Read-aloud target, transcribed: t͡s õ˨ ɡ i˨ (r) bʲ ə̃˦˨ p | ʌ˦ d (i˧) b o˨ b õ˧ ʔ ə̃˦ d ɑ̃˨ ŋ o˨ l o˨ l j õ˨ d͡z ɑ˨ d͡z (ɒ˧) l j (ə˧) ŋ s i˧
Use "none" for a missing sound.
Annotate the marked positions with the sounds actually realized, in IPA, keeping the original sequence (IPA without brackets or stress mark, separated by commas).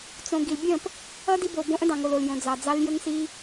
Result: l, i˧, ɑ˧, ə˧